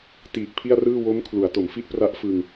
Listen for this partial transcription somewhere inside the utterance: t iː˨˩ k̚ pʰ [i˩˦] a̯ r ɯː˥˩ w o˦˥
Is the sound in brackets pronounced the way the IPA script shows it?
no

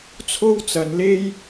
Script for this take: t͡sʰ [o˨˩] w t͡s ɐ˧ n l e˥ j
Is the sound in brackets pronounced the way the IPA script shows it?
no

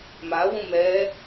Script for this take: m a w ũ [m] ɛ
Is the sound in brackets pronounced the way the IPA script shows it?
yes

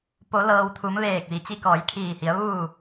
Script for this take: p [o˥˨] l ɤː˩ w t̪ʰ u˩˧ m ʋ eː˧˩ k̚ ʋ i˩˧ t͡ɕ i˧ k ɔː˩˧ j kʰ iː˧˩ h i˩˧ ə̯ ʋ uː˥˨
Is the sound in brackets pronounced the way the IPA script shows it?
no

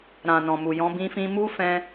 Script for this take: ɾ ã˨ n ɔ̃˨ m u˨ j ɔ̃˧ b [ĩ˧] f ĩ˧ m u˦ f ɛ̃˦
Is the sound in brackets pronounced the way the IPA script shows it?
yes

